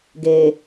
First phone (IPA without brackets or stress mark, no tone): ɡ